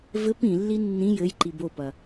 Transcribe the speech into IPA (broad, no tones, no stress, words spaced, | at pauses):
vɘp ĩlːi nːĩ jɘjǃi bopɐ